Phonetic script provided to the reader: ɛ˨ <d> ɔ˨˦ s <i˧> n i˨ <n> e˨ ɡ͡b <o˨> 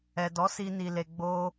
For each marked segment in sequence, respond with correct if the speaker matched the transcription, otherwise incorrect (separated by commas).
correct, correct, incorrect, incorrect